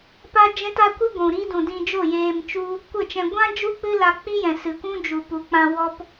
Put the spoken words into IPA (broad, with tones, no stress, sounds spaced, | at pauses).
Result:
p a˦ d͡ʒ ɛ̃˦ t a˦ kʷ i˦ ɡʷ ũ˨ ɾ i˦ d ũ˨ d ĩ˧ d͡ʒ o˦˨ j eː˧ m t͡ʃ u˦ | kʷ ə˦˨ t͡ʃ ɛ̃˧ ɡʷ ã˦ d͡ʒ u˦ k͡p ɨ˦ l a˧ k͡p i˦ j ɛ̃˨ s ɨ˨ kʷ ũ˦ d͡ʒ u˨ p u˨ k͡p ã˧ w ɔ˦ p